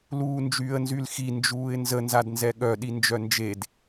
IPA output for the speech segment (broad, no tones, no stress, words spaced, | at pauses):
luːnd͡ʒyːə̯nzylxi nd͡ʒuːɪ̯nzə nzadnzɛɠœ ɗind͡ʒœnd͡ʒed